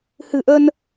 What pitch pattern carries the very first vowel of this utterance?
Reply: low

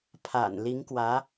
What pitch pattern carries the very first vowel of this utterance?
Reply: low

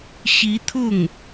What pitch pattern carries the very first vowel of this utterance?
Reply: rising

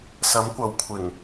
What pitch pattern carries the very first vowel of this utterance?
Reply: rising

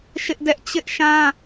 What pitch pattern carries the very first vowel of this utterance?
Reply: high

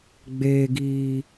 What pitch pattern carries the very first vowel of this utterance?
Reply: low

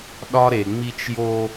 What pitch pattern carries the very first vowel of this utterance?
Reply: high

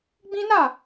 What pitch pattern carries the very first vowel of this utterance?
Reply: high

